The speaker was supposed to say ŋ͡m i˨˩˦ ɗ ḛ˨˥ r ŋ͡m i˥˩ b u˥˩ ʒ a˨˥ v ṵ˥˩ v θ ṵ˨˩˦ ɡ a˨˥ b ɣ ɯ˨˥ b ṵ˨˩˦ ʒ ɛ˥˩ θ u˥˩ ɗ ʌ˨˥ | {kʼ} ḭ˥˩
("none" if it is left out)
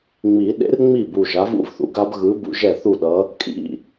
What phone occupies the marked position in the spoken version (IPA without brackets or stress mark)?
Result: kʼ